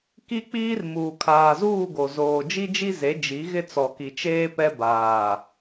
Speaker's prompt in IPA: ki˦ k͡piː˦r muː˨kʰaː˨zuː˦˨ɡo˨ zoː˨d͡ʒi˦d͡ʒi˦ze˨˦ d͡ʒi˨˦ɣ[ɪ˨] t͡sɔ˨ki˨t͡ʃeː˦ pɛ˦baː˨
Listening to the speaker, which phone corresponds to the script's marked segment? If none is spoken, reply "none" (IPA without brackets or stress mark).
ɪ˦